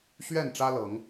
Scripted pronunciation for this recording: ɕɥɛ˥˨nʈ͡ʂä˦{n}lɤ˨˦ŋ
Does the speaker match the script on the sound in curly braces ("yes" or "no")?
no